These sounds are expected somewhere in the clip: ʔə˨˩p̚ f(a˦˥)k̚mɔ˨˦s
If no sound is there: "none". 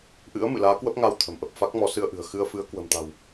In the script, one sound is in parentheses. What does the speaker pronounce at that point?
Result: a˦˥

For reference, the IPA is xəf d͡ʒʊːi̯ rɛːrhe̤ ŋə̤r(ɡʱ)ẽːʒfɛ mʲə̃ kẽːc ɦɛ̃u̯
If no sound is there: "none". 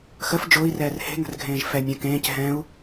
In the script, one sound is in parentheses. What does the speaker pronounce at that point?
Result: ɡʱ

